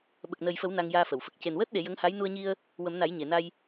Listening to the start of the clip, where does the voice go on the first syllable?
low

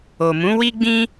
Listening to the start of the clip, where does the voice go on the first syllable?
low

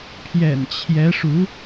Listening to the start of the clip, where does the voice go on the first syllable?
low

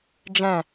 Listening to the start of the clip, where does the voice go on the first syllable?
low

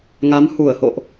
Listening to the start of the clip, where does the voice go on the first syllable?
rising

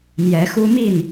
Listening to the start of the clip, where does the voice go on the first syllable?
rising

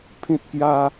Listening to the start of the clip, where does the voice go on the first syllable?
high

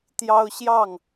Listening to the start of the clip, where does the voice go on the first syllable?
high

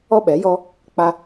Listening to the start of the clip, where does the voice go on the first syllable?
high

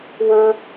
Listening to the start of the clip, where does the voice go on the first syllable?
high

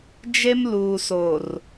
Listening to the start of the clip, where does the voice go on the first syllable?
high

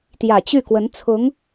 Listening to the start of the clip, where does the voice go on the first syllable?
low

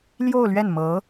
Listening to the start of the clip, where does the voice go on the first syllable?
falling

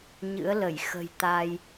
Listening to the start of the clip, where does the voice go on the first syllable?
rising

